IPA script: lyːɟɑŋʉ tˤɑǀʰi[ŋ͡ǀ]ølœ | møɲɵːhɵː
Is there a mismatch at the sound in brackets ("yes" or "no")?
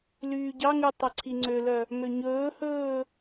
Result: no